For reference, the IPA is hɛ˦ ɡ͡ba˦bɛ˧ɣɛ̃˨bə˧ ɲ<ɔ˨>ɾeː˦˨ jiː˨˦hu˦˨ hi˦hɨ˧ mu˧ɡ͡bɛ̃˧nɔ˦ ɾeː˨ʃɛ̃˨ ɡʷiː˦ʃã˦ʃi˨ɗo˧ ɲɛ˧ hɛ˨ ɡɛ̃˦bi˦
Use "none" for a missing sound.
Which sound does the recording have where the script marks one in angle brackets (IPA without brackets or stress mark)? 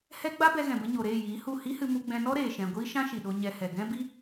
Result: o˨